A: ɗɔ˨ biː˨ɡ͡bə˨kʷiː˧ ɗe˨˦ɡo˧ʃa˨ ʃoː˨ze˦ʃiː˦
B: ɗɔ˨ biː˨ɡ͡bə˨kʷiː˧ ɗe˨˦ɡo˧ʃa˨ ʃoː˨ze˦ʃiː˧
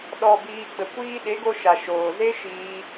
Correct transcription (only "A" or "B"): B